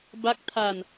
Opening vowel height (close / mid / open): open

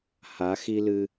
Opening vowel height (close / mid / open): open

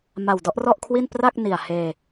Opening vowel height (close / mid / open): open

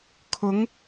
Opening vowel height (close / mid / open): close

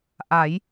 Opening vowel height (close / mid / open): open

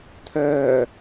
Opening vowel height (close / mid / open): mid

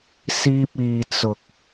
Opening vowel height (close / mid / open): close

